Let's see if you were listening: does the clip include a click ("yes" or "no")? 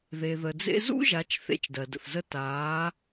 no